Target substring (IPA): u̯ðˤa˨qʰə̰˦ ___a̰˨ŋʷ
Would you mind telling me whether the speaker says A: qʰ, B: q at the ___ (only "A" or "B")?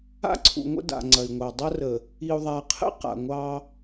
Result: B